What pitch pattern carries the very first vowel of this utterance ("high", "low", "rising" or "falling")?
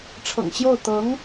low